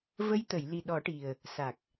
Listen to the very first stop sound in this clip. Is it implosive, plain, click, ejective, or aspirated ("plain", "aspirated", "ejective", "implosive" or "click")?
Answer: plain